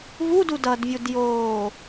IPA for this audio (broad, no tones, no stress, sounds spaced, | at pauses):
v u d u d ʌ d vʲ u d j oː